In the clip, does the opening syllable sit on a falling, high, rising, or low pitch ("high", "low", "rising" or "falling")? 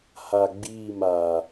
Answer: low